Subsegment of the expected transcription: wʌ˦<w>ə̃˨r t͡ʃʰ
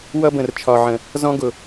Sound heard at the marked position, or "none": b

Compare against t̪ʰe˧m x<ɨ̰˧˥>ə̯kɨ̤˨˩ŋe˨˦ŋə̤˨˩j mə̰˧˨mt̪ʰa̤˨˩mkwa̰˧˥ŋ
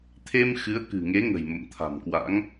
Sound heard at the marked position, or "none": ɨ˨˦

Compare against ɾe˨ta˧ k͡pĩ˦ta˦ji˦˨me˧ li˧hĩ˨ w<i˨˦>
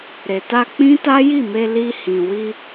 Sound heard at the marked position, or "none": i˧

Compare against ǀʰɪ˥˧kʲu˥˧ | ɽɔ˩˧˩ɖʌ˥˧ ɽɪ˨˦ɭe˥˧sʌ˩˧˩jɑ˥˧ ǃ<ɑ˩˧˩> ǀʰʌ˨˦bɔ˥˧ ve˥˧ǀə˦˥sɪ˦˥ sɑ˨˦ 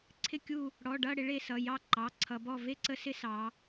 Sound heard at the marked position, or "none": ɑ˩˧˩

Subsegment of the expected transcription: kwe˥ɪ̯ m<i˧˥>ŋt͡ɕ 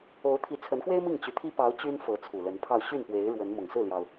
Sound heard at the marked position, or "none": i˥˩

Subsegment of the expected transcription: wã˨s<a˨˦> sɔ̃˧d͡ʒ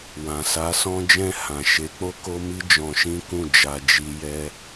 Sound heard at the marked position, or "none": a˨˦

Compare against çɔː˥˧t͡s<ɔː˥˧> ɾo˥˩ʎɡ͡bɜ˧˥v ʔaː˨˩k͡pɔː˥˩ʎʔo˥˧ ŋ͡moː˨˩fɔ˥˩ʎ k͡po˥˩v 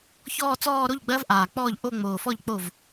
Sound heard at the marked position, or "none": ɔː˥˧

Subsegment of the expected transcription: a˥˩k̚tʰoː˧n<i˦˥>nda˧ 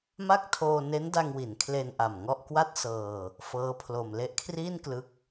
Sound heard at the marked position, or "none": e˦˥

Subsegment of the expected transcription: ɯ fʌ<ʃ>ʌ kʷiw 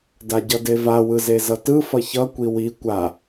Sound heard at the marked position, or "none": ç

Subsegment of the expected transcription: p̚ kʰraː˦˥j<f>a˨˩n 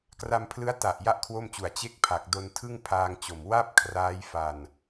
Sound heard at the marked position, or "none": f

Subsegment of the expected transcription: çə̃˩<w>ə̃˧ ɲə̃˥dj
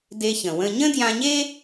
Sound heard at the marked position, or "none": w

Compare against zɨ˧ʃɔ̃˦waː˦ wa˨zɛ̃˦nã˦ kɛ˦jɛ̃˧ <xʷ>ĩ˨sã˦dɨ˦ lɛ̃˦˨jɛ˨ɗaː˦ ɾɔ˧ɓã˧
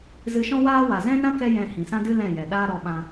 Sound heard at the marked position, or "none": h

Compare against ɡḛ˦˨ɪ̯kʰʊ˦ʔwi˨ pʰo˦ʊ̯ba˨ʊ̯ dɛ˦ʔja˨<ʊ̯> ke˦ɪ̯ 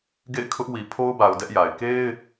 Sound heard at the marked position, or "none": ɪ̯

